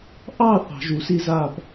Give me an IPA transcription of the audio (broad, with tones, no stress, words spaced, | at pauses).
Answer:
ʔɑ˥˨ θɑ̤˩˧ʒu˩˧si˥˨za˥˨p